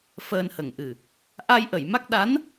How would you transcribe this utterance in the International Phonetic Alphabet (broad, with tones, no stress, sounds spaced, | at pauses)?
f əː˧ n h ə˨˩ ŋ ʔ ɨ˨˩ | ʔ a˧ j ʔ ə˨˩˨ j m a˦˥ k̚ ɗ a˧˥ n